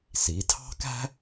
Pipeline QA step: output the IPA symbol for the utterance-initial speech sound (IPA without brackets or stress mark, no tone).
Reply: s